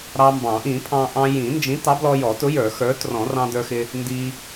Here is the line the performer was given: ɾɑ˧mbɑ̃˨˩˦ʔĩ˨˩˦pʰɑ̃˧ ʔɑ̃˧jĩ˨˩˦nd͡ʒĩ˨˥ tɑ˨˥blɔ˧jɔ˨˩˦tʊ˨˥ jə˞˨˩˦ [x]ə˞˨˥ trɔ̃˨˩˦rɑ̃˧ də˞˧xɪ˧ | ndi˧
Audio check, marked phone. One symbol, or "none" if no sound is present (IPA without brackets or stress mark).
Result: x